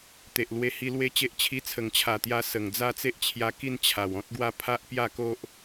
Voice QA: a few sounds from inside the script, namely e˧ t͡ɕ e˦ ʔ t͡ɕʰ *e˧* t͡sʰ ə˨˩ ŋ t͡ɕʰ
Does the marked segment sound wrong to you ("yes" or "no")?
yes